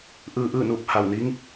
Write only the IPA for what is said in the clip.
ʔ ɯː˧ ʔ ɯː˥˨ n uː˧˩ p̚ h a˧˩ w n i˧˥ ŋ

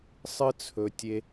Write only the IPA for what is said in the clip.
sˤ ɨ˧ t͡sʰ ɵ˨ tʲ e˧

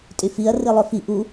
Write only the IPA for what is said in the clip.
tʼ y f i ɐ̯ r i lˠ ø f i ʔ u

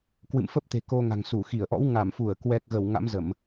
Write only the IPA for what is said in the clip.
k w ɨ̰˧˨ m f ə˦˥ p̚ t̪ e̤˨˩ k o˧ ŋ a̤˨˩ ŋ s u˧˩ x i˧˩ ə̯ ʔ ɔ̰˧˥ w ŋ a˧˩ m f u˧˩ ə̯ k w ɛ˨˩ k̚ ɣ ə˧˩ w ŋ a̰˧˥ m z ə˧˩˨ m

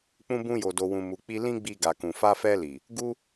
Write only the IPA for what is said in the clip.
k͡p ũ˧ b ũ˧ j o˨ d o˨ w ũ˨ m u˨ k͡p i˧ l ĩ˦ ɡ͡b i˧ ɡ a˨ k ũ˨ f a˧ f ɛ˧ l i˨ | ɡ u˦

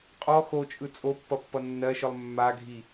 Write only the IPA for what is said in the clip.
qʼ ɔ x o t͡ʃʼ ɯ t͡sʼ o pː ʌ pː ʌ nː ɜ ʃ ɯ lˠ mː a ɡʱ i

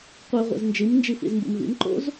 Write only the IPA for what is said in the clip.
qʷ e ʁʷ ḛ z n d͡ʒ i m n d͡ʒ i f ḭ z m b ṵ m v ḭ m ǃ o̰ z

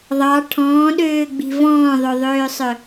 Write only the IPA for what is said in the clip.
ðˤ ɑ ʈʰ ɔ̃ː ɗ øː ɡ͡b i̤ v ɔ̃ː ðˤ ɵ ðˤ øː sˤ œ

